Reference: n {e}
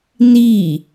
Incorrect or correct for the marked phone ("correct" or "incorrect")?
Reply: incorrect